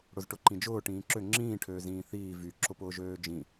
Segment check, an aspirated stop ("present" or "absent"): present